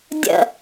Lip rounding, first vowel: unrounded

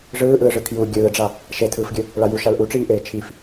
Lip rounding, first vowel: unrounded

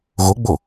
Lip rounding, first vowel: rounded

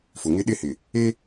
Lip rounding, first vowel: rounded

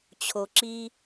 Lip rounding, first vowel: rounded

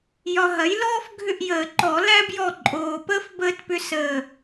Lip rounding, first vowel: rounded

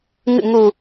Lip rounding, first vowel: unrounded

